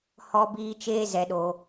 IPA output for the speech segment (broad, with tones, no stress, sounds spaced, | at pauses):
h ɔ˦ b iː˦ t͡ʃ eː˦ z ɛ˧ ɗ o˧